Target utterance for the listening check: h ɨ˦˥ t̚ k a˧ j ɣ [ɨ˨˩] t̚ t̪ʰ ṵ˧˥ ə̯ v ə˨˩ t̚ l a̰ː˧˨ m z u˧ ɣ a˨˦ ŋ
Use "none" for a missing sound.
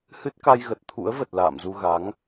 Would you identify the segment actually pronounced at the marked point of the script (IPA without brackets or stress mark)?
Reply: ə˨˩